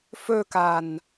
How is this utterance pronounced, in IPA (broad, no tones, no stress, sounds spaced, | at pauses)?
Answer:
f ɵ k a n